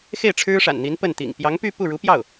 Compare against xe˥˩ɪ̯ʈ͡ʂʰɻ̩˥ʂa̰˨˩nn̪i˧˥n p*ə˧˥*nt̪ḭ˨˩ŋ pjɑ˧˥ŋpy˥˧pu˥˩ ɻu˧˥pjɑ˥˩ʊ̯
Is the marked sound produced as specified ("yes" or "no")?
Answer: no